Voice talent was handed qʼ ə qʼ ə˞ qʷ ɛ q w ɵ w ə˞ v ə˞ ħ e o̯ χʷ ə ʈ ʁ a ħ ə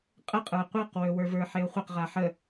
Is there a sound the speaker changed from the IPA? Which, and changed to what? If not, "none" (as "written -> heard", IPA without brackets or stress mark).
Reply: ʈ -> q